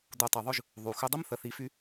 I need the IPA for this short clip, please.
d u˨ tˤ u˨ ðˤ ʏ˦ ʒ | ðˤ u˨ x ʏ˦ dˤ ə˦ m θ ə˨ θ i˨˦ f y˦

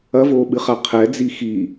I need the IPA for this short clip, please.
ɐ v oː ɓ ɨ χ a qʰ ɛ d͡z i x i

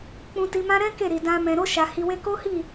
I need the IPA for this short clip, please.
k͡p ũ˧ t i˧ m ã˦ ɾ ɛ̃˦ k e˦˨ ɾ i˨ d ã˧ m ɛ̃˨ ɾ o˧ ʃ a˨ h i˧ w e˦ k o˦ h i˦˨

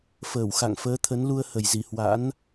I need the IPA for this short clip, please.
f əː˧˩ w x a̰˧˨ ŋ f əː˨˦ t̪ʰ ə˨˦ n l u˧ ə̯ h ə˨˩ j z i˧˩ h w a̰˧˥ n

